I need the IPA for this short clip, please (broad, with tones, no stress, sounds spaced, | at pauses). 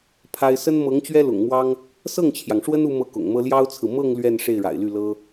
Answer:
pʰ a˥ ɪ̯ s ə˥ n m ɤ˧˥ ŋ t͡ɕ ɥ ɛ˥ l ʊ̰˨˩ ŋ m w ɑ˥ ŋ | s ɤ˥˩ ŋ t͡ɕʰ j ɑ˩ ŋ ʂ w ə˥ n u˥ m ɤ˥˩ k ʊ̰˨˩ ŋ m ɤ˥ l j ɑ˥ ʊ̯ t͡sʰ ɹ̩˨ m ɤ˥˧ ŋ l ɥ ɛ˥˧ n ʂ e˥˩ ɪ̯ ɻ a̰˨˩ ɪ̯ l y˥˩ l ɤ˥